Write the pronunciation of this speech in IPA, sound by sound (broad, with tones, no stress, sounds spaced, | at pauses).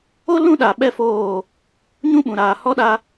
o˦ l ũ˦ ɗ a˨ ɓ ɛ˦ f oː˦˨ | ɲ ũ˦ ɓ ũ˨ ɾ aː˨ h ɔ˦ ɗ a˦